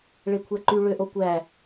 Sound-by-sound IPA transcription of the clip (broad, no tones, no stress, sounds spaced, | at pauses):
ɭ e kʷʰ æ ǃ y ɭ ø ʔ o kʷ æ